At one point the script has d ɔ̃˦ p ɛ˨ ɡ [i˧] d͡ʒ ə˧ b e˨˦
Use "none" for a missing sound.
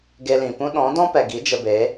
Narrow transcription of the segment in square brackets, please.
i˨˦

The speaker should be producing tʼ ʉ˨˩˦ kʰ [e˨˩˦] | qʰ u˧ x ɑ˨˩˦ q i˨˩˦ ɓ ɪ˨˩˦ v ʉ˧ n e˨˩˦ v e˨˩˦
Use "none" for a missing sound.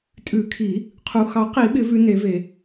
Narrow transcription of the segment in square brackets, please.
i˨˩˦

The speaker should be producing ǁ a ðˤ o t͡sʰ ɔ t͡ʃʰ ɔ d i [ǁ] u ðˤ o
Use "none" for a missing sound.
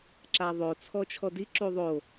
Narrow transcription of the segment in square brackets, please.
ǁ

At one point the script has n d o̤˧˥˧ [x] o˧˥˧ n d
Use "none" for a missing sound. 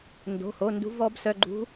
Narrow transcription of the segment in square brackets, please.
h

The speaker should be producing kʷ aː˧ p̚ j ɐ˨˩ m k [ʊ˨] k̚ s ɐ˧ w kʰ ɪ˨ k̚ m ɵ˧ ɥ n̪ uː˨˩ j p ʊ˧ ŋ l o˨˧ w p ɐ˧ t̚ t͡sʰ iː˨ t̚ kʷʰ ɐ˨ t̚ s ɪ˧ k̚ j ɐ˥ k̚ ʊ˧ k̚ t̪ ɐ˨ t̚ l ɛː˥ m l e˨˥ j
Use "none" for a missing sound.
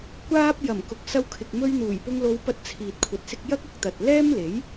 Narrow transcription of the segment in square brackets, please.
ʊ˨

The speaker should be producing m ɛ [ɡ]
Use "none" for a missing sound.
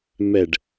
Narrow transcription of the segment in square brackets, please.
ɖ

